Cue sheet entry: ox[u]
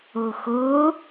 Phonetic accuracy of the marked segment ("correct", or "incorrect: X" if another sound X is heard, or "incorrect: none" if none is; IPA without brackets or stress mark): incorrect: o